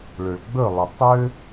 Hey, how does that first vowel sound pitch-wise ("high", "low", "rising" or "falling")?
low